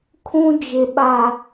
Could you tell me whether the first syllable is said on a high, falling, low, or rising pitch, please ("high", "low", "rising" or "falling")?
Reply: low